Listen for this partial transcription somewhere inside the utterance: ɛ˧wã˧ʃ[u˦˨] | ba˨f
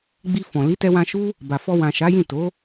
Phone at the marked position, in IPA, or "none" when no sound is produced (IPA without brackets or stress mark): u˦